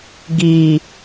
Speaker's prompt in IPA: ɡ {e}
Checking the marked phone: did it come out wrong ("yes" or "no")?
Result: yes